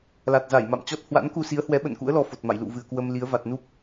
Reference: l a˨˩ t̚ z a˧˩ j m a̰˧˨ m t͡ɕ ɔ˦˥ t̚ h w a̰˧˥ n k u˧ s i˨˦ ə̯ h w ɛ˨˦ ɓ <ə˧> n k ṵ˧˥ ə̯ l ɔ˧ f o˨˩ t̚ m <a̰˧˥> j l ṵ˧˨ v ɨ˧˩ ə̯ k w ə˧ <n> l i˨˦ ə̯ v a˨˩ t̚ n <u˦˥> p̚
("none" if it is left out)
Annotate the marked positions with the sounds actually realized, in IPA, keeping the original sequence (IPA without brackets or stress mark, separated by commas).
ə̰˧˨, a̰˧˨, m, u˦˥